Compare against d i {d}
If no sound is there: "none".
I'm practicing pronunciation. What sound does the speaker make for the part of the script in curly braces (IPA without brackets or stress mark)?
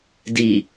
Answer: none